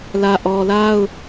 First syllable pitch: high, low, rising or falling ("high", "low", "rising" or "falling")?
low